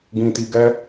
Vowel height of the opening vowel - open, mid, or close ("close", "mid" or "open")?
close